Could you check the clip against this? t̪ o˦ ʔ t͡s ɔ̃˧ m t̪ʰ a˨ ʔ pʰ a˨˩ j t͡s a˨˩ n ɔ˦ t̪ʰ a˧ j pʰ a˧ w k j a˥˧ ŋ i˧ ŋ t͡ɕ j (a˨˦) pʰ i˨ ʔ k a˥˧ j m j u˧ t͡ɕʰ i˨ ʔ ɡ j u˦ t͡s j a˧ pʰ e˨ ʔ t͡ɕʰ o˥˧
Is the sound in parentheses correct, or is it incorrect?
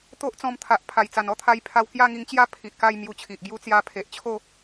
incorrect